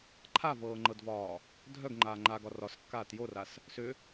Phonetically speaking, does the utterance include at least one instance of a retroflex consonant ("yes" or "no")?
no